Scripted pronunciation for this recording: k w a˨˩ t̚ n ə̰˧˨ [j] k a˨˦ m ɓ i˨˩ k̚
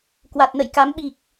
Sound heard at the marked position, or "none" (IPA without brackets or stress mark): j